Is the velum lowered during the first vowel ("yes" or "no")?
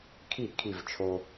no